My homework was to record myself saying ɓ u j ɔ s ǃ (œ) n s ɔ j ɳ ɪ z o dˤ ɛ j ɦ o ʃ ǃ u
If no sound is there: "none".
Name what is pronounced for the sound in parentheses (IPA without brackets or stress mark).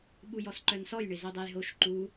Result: œ